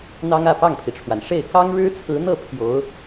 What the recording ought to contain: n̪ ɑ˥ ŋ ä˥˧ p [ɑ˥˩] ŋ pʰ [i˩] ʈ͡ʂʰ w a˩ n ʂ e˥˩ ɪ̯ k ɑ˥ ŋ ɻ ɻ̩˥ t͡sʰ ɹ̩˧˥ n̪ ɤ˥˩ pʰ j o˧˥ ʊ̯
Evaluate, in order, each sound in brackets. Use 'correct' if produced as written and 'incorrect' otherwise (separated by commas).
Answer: correct, correct